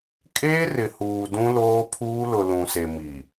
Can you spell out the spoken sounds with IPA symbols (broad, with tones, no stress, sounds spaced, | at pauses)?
kʼ eː˦ r ɪ˨ h uː˨ d ũ˦ l oː˦ pʰ uː˦ l ʊ˨ l ũ˨ s e˨ m i˨